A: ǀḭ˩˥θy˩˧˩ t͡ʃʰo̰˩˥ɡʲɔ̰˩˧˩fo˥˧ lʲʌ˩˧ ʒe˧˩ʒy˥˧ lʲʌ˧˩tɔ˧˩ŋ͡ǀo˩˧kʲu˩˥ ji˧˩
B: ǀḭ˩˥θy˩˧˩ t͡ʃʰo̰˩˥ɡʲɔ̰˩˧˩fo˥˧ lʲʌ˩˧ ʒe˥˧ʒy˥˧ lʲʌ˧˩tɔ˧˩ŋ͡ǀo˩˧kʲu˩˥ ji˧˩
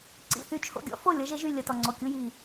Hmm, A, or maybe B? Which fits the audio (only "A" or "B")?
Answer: B